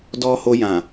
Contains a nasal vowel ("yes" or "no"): yes